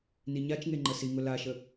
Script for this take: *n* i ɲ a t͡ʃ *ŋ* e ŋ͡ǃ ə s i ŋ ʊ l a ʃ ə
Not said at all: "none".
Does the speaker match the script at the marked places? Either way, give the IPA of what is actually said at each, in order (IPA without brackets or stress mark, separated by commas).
n, ŋ